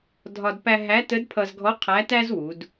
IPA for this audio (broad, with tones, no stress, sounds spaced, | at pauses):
dʱ ɒ˧ d p æ˧ ɦ æ˧˥ t ə˧˥ d pʰ ʌ˧ z ɡʱ ɔ˧˥ qʰ æ˧˥ t æ˥ z w u˩˧ d